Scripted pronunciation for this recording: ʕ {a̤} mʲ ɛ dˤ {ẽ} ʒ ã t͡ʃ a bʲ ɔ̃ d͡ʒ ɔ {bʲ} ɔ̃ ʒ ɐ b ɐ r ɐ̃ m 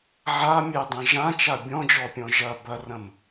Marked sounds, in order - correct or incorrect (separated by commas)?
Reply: incorrect, correct, incorrect